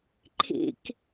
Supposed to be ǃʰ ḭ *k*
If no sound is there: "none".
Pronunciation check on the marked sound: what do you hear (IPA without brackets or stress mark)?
k